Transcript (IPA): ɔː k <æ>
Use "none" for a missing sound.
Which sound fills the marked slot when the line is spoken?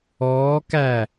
æ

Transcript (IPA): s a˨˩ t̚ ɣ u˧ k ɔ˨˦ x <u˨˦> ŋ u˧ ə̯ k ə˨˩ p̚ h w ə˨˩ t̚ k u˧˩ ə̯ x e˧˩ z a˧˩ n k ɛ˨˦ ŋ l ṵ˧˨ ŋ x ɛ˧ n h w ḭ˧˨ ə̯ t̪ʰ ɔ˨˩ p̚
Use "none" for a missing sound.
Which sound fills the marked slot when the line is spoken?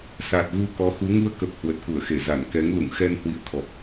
u˨˦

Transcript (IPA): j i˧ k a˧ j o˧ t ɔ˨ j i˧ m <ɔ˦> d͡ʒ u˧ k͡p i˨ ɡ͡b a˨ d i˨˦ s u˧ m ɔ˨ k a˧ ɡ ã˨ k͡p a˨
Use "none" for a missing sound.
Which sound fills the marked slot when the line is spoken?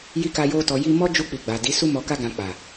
ɔ˦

